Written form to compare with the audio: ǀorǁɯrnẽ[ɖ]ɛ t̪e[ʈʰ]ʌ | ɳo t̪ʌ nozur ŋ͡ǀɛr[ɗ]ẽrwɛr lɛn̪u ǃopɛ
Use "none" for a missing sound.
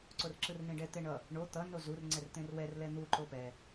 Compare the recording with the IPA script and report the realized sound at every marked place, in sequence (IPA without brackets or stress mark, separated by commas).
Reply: ɖ, ɳ, t̪